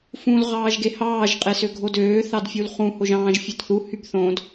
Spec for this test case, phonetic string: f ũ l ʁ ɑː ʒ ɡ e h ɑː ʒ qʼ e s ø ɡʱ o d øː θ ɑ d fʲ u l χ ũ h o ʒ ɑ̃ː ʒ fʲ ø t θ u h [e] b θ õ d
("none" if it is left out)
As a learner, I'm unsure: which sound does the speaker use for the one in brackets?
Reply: y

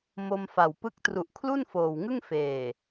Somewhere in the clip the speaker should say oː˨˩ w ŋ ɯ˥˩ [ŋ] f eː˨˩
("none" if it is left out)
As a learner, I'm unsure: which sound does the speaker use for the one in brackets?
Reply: ŋ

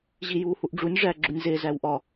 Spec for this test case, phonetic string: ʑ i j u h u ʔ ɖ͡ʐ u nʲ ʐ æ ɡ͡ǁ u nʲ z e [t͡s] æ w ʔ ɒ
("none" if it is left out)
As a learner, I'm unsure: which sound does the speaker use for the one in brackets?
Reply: z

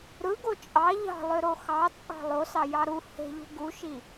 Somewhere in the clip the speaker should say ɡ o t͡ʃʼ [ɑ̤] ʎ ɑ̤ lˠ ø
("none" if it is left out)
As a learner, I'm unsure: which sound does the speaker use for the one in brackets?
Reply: ɑ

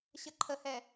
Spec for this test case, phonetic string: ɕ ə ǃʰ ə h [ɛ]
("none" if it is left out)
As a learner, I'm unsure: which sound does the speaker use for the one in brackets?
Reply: ɛ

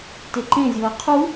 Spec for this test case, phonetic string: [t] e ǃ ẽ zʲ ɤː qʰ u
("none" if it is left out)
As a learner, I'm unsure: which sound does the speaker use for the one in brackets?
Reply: t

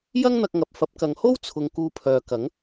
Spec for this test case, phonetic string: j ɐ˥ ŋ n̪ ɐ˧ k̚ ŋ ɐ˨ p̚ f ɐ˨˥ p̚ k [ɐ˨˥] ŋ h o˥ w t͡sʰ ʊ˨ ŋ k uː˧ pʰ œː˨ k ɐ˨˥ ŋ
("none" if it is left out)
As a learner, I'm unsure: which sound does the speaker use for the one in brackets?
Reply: ɐ˨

